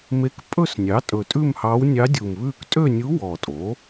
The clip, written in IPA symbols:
me˧˥k pʼɵ˥˧snʲɑ˩˥ tʼɵ˨˩tʼʉ˥˧mhɑ˧˥w nʲɑ˧˥dʲu˨˩mβʉː˥˧k tʼø˥˧nʲu˧˥ wɔ˨˩tʼo˩˥

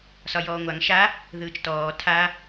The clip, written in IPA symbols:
sɒjɔːŋʷaŋ ʃa | ðɯːt͡ʃtɔː tʰa

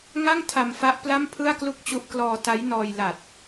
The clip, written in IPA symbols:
ŋa˥˩ŋ tʰa˧mfa˦˥ʔ pla˥˩mpʰɯ˥˩a̯klu˥˩k̚t͡ɕu˦˥ʔ klɔː˧ta˦˥jnɔː˧jla˨˩t̚

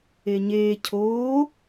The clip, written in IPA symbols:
eɲeː cʰoː

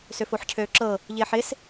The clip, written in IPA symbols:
søfoħcʰøːǁɤ | ʎɪːħɪs

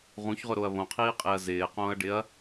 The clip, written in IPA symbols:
ʁũçʁʊɾoɐ̯ βõqʰiːqʼeɐ̯ zɪːqõːɐ̯ɖɪɐ̯

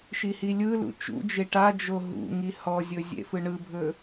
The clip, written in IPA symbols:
ʃihilʲɯlṵ t͡ʃṵd͡ʒe ʈad͡ʒo ɦṵŋi hɔzʲɵ zʲḛfɯɳɯbʱɵ

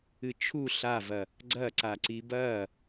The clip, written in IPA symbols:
ɨt͡ʃʰu ɬavɐ | ɡ͡ǀɐǀa ǀibɐ

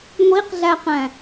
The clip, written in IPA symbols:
ŋʷiqɮæqæ̃

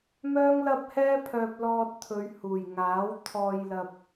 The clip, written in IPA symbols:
mœː˥ŋlɐ˥p̚hɛː˥pʰœː˧p̚ lɔː˧t̚t̪ʰɵ˨˧ɥ huː˨˩jŋaː˨˥w t̪ʰɔː˧jlɐ˧p̚

